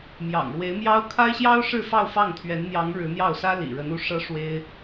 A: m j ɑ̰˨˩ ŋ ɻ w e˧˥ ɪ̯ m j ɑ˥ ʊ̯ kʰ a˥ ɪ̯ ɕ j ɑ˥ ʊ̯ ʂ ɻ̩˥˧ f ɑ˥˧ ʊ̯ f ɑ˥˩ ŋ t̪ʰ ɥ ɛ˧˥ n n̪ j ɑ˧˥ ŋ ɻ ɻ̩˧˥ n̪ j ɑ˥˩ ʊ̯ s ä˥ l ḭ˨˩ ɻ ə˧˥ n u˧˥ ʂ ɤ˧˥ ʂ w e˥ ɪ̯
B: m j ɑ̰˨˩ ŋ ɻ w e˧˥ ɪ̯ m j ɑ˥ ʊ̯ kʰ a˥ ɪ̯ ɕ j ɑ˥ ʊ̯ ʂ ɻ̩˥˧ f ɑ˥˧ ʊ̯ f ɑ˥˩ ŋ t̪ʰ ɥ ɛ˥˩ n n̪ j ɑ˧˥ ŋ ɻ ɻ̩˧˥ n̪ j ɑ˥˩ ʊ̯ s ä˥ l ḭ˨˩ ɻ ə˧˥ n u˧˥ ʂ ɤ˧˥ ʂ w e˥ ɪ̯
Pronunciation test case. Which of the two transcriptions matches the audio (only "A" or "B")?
A